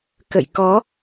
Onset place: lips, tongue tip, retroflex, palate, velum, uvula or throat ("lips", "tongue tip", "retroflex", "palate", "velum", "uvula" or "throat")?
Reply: velum